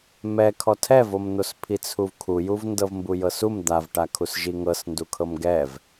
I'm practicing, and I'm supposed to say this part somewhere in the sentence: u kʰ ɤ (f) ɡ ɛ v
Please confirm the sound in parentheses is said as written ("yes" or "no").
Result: no